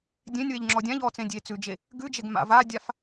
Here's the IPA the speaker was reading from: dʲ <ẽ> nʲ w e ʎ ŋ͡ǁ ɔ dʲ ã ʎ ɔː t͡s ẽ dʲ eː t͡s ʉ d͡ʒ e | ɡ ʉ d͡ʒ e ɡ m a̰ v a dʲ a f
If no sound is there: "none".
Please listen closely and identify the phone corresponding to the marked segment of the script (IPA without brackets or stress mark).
ẽ